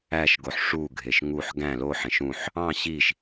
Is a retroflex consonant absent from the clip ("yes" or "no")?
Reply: no